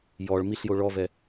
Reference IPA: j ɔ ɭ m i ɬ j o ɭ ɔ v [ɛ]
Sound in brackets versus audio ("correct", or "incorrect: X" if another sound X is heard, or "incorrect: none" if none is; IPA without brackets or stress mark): correct